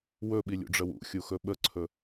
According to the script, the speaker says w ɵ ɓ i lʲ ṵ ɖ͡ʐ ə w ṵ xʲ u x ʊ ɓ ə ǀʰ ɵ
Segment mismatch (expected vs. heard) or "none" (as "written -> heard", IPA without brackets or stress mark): ʊ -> ɵ